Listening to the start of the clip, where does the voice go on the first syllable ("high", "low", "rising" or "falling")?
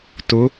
rising